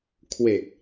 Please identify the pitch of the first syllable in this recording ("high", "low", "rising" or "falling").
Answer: low